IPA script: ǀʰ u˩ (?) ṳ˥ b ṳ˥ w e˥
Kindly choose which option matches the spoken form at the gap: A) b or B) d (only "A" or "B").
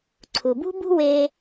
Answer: A